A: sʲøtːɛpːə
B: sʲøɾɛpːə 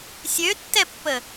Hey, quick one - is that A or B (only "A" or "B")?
A